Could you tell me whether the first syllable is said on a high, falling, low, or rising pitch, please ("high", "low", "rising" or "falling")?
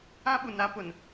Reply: high